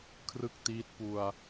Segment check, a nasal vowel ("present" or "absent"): absent